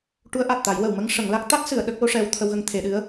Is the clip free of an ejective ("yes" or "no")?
yes